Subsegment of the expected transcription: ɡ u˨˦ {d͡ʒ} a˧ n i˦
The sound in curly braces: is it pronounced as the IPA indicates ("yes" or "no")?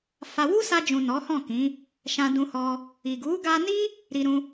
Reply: no